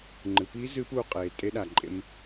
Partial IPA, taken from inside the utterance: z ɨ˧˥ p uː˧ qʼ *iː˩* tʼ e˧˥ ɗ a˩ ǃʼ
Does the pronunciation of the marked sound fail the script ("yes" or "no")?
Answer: yes